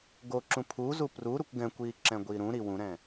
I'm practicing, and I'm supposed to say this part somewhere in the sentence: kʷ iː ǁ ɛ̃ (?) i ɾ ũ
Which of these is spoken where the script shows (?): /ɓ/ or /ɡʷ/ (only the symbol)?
ɡʷ